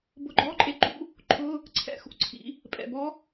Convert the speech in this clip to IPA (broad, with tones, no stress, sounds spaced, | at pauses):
b ʊ˧˥ ɡ͡ǃ ɔ˧˥˧ ǃʼ e˧˥ ǃ ṵ˧˥˧ | ǃʰ ʊ˧˥˧ | ǀʰ ɛ̰˧˥˧ x ṵ˧˥ ǀʰ ḭ˩˧ | pʼ ɛ̰˩ b ɔ˧˥